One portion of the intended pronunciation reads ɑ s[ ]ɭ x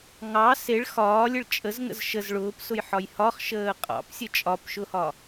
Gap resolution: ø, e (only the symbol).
e